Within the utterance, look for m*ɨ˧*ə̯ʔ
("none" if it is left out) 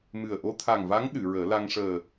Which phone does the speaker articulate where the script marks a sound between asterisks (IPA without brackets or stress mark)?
ɨ˨˩